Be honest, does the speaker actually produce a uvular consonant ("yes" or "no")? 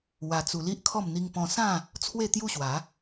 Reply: no